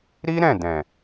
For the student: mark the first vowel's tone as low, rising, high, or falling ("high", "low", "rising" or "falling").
high